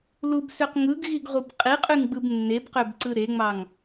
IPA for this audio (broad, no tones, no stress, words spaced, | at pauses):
lubsøq ŋɯɡɣiɡʁʷib qʼiqʼyŋɡ͡bɯb nːebqøbǀɯ ɾeŋ͡mɑŋ